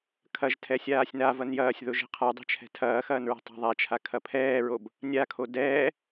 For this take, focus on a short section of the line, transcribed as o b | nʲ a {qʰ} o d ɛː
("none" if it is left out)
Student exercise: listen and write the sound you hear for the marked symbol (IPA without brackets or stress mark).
kʰ